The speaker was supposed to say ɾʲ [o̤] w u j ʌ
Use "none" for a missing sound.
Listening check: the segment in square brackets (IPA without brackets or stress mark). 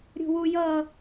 o̤